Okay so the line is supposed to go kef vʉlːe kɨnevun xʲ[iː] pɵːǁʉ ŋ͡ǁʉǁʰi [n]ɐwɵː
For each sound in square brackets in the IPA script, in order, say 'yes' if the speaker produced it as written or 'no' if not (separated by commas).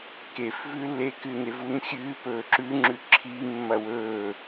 no, no